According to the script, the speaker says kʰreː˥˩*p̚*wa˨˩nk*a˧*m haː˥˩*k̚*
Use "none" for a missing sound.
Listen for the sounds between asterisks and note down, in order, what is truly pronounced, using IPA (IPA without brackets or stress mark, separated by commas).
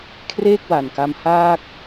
k̚, a˧, k̚